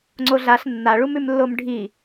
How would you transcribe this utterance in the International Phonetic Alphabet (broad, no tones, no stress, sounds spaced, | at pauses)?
ŋ͡ǀ o ɮ a ɬ nː a ɭ u m ʉ m lː o m ɖʱ i